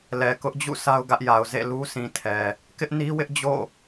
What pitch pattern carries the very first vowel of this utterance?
low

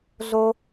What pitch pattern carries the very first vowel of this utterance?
high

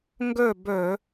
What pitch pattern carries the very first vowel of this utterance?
falling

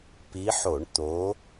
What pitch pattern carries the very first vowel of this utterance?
rising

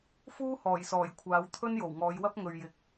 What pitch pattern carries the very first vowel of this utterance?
high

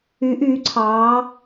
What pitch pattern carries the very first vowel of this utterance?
rising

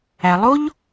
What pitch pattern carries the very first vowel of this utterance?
low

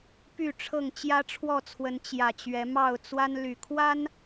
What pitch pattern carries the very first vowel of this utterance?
falling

